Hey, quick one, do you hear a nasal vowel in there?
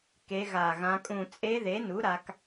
yes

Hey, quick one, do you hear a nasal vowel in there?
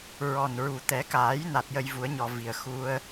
no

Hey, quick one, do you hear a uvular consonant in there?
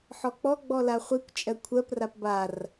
yes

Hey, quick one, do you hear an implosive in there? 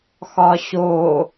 no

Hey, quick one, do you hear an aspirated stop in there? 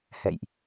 no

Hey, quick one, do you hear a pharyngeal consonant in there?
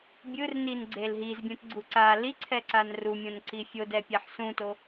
yes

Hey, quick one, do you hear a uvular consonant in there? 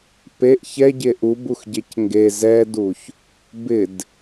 no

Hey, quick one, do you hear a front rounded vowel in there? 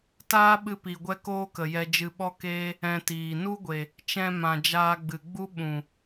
no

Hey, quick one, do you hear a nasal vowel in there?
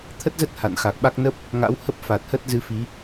no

